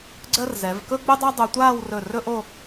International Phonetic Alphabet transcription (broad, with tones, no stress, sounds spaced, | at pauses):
ɡ͡ǀ ɜ˥ r z ɛ˩˧ v k ɵ˥ ɡ͡b ɵ˥ dˤ ɑ˥ dˤ o˧ tʷ aː˥˧ w r ɵ˧˩ r ɵ˥ ʔ o˥˧